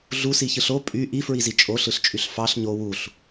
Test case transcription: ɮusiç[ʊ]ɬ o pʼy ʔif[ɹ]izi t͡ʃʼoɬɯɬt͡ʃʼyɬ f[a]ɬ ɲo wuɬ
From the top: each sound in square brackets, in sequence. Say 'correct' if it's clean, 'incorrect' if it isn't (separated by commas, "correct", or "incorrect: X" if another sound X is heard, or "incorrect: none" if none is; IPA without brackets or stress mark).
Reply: incorrect: ɯ, correct, incorrect: ɑ